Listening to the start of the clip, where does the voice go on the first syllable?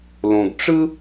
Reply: low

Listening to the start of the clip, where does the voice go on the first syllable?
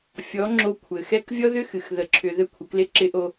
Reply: rising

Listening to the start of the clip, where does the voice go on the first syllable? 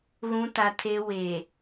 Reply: high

